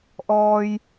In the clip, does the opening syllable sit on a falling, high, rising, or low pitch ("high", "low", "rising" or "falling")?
low